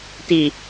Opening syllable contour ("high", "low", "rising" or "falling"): low